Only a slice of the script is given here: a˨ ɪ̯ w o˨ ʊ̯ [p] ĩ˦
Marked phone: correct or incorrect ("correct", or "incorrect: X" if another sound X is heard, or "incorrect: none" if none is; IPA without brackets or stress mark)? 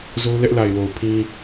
incorrect: pʰ